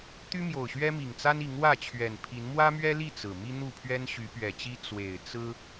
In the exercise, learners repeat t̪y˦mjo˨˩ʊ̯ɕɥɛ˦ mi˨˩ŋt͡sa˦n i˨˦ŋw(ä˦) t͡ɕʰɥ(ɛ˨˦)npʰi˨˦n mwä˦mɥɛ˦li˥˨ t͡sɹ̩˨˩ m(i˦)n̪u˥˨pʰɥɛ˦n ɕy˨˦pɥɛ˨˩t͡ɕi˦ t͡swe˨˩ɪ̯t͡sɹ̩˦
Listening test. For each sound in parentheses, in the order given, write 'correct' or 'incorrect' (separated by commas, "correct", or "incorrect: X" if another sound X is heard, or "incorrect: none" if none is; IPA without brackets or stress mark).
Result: incorrect: ä˥˨, incorrect: ɛ˨˩, correct